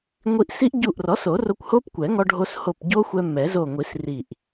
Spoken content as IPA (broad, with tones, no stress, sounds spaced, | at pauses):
ŋʷ i˧ ʔ s i˦˥ ʔ ɟ u˧˩ ʔ r ɔ˩˥ s o˨˩˦ r o˧ kʷ h o˦˥ p kʷ ɛ˨˩˦ ŋ ɔ˧ ɖʱ o˧ s h o˧˩ p ɟ o˦˥ xʷ ɛ˧ m ɛ˨˩˦ z o˧˩ ŋʷ i˨˩˦ s r i˧˩ ʔ